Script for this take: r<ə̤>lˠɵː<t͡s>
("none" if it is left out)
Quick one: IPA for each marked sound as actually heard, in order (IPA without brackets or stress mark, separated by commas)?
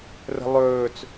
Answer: ə̤, t͡s